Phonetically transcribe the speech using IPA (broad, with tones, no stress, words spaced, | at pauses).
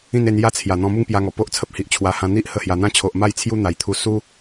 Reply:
ĩ˥˧ne˧nja˥˧ t͡sʰja˨˩ n̪ɔ̃˧mu˥˧ŋpja˧ŋɔ˨˩ po˦ʔt͡sʰə˦p̚hi˨ʔ t͡ɕʰwa˧ hã˧n̪i˦ʔ hə˥˧hja˧ n̪ã˥˧t͡ɕʰo˨ʔma˥˧j t͡sʰju˦n̪a˨˩jt̪ʰu˧ su˦